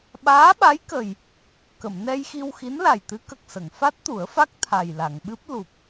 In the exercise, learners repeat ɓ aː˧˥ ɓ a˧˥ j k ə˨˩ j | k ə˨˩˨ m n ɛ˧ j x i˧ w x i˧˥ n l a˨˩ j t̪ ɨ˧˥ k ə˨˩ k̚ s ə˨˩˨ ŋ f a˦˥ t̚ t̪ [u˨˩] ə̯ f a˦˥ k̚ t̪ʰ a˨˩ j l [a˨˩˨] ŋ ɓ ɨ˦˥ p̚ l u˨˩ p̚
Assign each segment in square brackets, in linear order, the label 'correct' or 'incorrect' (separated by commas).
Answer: incorrect, correct